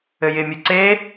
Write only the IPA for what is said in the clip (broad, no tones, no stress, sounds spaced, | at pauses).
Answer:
ɘ j ɪ mʲ ɯ ǀ e